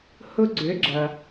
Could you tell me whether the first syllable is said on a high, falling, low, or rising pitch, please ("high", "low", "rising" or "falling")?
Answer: high